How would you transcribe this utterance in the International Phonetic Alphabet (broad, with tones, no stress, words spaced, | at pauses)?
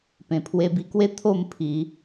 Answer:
pẽ˨˩pʰwe˧bi˧kwe˦ t̪ʰo˥˧mpʰi˨˦